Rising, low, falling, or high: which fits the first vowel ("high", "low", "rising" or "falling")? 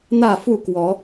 falling